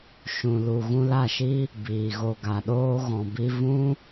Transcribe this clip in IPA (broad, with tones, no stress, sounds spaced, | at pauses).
ʃ ũ˨ l u˨ ɣ ũ˧ l a˦˨ ʃ i˦ | b iː˨ ɣ o˨ ɡ a˨ ɗ oː˧ ɣ ɔ̃˨ b i˧ v ũ˦